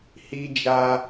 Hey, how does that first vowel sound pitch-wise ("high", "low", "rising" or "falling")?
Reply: high